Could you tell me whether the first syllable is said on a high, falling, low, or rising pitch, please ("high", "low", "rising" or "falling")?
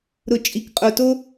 low